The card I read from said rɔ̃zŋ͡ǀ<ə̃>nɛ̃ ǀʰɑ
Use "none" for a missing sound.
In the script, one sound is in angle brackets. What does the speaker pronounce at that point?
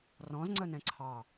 ə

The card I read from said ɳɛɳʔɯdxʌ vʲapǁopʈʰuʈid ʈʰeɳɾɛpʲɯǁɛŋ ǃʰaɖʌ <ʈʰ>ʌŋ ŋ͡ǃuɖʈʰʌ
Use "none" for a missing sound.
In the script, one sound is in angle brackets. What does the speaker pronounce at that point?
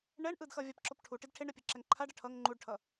ʈʰ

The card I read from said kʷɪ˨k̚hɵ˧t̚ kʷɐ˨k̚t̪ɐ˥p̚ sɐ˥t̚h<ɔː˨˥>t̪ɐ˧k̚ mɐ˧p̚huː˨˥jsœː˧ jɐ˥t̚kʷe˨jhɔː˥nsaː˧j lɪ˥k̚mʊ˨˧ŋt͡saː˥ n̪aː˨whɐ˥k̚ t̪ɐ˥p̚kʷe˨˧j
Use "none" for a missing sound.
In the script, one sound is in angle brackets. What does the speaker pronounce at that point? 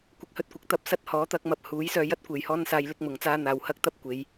ɔː˨˥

